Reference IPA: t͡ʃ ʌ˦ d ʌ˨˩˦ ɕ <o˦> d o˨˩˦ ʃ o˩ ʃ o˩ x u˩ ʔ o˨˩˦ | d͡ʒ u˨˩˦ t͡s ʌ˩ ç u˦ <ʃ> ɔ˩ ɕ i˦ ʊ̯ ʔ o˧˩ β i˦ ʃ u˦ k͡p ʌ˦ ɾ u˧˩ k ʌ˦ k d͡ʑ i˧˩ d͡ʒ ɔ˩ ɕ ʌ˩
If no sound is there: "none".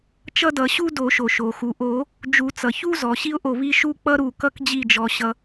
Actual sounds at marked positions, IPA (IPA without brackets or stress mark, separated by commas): u˦, z